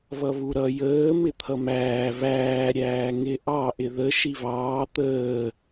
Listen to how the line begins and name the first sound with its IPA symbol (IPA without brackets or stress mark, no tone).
β